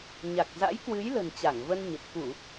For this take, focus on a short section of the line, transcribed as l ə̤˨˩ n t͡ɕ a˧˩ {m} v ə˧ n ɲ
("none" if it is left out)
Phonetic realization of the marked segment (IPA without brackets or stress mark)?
ŋ